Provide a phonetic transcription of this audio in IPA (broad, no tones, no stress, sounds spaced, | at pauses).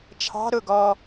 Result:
t͡ʃʰ ɑ̤ ɾ ʊ ɡ ɔ